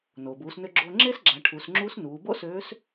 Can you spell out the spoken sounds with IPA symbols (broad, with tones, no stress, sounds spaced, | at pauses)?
n oː˩ b uː˩˧ s n ø˧ ɡ͡ǁ oː˧ ŋ͡ǁ eː˥ s ɡ͡ǁ æ˩˧ ʈʰ u˩˧ s ŋ͡ǁ uː˧˥ s n uː˩˧ b o̰˥ s øː˧˥ s